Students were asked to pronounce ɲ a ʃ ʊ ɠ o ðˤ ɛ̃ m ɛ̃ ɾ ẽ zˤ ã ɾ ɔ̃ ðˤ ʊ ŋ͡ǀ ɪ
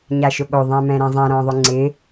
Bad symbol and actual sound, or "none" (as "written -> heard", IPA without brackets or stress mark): none